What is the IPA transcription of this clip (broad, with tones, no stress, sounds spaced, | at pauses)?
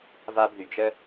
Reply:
v a˦ b ð y˩ d͡ʒ ə˥